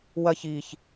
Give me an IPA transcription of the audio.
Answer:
w ɐ ç i ç

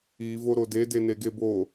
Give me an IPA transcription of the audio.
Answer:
i v o ɾ o d e d e n e ɡ e b o

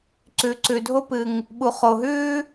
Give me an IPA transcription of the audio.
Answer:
ǀ ʉ˨ ǀ ʉ˨ dʱ o˥ p ɨ˨ ŋ | ɓ u˨ χ o˨ ɦ ʉː˥

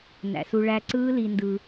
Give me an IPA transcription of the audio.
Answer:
n æ̰˨ s u˧ ɭ æ˧ ǀ ɯː˦ l i˧ n d ɯ˧

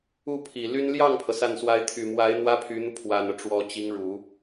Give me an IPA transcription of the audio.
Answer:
u˥˩ pʰ i˨˩ l y˥ n l j ɑ˥˩ ŋ pʰ ɤ˩ s a˥˩ n s w a˥ ɪ̯ t̪ʰ y˨˩ m w a˧˥ ɪ̯ n̪ w ä˥ pʰ y˧˥ n̪ u˧ pʰ w a˨˩ n ɤ˦ ʈ͡ʂ w ɔ˧˥ t͡ɕ i˧˥ ŋ ɻ u˨˩˦

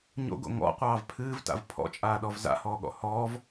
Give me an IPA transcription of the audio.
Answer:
ɲ o̰ ɡ o̰ ŋ ɔ̰ qʷ ɑː v pʰ ɨː v t a̰ v pʰ ɔ̰ t͡ʃʼ aː ɗ ɔ v z a̰ h ɔː ɠ ɔ̰ h ɔː v

